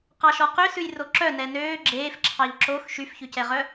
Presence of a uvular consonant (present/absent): present